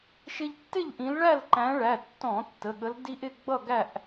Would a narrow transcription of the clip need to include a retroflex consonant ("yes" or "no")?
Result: yes